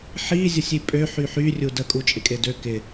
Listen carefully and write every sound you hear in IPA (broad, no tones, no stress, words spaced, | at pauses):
ħi zʲəsʲipʼø ħyħy rʲudə kʼut͡ʃʼɪkʼedø kɪ